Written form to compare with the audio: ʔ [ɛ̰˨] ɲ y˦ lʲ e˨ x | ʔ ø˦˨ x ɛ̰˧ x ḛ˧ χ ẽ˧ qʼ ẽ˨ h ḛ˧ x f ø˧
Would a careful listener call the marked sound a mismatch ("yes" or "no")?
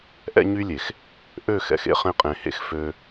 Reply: yes